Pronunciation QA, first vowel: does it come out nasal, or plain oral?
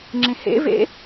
nasal